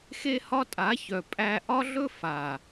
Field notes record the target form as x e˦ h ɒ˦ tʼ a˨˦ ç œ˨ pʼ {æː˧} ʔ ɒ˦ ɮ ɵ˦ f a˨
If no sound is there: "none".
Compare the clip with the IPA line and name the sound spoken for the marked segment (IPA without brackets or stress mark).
æ˧